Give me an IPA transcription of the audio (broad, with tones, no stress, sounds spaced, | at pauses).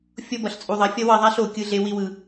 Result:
fʲ o˦ b ʌ˨ ɬ t͡sʼ u˨ ðˤ ʌ˨ fʲ ʌ˦ w ʌ˦˨ ðˤ a˦ ɬ o˨ kʲ ɯ˦ ɮ e˦ w i˦ w ɯ˨